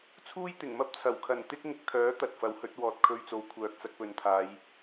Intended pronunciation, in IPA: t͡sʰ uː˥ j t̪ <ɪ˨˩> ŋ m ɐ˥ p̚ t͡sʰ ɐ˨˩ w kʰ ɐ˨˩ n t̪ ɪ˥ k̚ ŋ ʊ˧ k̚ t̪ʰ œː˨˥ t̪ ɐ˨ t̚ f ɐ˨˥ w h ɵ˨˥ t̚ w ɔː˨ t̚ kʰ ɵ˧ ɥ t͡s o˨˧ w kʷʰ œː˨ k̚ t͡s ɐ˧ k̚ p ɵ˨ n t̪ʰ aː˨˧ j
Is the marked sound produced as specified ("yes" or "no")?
yes